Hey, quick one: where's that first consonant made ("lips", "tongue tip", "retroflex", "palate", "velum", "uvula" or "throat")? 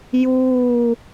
palate